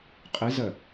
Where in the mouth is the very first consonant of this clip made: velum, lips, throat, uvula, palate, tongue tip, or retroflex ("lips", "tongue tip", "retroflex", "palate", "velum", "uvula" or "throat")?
uvula